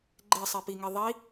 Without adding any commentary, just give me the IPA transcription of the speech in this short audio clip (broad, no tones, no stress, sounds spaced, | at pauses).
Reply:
ɡ͡ǃ e sˤ e p i ŋ e ðˤ i